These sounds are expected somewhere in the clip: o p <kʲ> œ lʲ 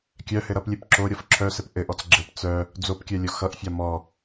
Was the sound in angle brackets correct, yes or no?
yes